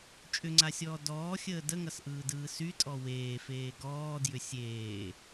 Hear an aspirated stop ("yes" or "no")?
no